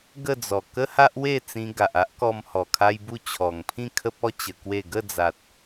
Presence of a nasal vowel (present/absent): present